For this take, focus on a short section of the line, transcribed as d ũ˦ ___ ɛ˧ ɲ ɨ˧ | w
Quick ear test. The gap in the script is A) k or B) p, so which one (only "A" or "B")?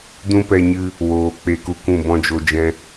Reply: B